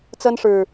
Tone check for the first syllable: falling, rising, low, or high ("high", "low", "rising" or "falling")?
high